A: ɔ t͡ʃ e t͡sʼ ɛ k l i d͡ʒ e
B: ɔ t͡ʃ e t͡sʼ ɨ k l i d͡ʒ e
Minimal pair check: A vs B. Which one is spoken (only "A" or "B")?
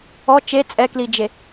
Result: A